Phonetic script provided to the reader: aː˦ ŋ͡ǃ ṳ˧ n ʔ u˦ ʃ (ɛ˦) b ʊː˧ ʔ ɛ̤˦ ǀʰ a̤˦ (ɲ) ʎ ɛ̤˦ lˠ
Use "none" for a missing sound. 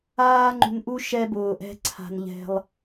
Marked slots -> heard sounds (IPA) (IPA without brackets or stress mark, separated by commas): ɛ˦, n